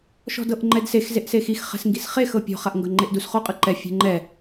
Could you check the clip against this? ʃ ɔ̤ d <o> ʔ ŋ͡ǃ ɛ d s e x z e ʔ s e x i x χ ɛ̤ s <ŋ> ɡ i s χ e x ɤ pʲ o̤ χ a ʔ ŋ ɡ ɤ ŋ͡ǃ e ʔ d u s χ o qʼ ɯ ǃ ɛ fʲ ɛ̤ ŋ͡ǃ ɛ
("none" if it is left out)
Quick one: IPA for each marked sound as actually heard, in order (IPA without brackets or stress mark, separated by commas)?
ɤ, ŋ